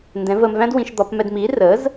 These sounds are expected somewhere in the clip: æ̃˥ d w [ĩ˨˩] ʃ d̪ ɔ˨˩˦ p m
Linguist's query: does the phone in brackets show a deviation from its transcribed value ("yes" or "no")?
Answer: yes